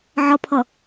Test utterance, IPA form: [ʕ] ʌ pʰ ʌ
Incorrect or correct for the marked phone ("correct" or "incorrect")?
correct